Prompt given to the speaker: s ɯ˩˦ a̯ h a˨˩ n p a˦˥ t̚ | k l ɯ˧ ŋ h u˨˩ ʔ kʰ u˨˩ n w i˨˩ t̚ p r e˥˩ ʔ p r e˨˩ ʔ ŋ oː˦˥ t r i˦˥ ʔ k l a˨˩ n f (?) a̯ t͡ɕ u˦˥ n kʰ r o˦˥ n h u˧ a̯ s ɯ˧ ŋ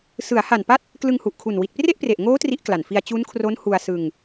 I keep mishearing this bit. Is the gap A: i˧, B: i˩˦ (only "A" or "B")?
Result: A